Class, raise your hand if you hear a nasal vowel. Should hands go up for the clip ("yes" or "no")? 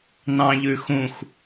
yes